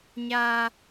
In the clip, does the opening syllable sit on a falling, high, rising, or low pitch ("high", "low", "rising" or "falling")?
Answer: high